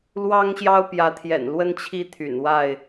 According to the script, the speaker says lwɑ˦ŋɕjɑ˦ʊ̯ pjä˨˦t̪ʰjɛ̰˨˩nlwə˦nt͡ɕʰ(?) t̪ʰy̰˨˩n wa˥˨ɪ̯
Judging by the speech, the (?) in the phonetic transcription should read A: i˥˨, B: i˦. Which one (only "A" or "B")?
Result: B